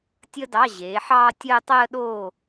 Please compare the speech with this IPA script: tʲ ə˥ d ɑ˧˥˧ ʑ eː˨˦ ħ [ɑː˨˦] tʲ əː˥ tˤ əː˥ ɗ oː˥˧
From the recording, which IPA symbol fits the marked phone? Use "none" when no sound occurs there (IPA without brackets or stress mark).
ɑː˥